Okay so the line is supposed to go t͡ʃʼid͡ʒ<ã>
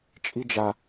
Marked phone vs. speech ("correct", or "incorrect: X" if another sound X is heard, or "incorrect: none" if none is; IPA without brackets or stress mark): incorrect: a